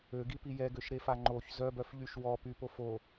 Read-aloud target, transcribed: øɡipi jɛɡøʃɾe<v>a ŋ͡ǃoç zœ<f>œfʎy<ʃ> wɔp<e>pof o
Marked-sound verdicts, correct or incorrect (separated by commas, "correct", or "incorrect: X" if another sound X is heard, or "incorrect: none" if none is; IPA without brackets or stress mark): incorrect: f, incorrect: b, correct, incorrect: y